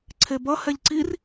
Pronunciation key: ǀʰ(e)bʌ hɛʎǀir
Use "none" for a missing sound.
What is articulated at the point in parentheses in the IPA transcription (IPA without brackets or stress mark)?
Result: e